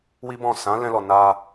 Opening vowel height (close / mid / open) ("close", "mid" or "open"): close